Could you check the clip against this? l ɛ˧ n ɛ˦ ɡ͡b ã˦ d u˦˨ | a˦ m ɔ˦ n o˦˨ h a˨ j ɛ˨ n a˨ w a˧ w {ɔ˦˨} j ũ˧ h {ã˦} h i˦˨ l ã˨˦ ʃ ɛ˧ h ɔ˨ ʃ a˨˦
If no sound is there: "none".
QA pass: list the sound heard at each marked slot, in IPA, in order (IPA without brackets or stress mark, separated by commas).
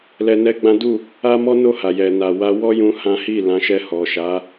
ɔ˦, ã˦